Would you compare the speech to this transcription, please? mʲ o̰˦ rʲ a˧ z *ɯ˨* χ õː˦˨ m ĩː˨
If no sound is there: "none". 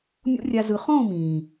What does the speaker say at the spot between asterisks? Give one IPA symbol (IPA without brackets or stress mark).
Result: ɯ˨